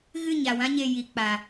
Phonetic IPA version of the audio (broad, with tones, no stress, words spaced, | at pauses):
ɣɨ˦˨ ɲa˨wã˦ ɲe˧ji˨k͡paː˨